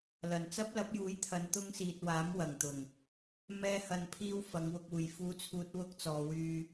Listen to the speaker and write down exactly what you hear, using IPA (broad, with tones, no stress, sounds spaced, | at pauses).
l ɐ˨˩ n t͡s ɐ˥ p̚ l ɐ˨˥ p̚ j uː˨˥ j t̪ʰ ɐ˨˧ n t̪ ʊ˥ ŋ s iː˨ t̚ w aː˨˥ m w ɐ˨˩ ŋ t̪ ʊ˨˩ ŋ | m ɛː˥ h ɐ˧ n pʰ iː˥ w f ɐ˨˧ ŋ w ʊ˧ k̚ uː˨ j f uː˥ t͡sʰ uː˥ t̚ w ʊ˥ k̚ t͡s ɔː˨˧ w yː˧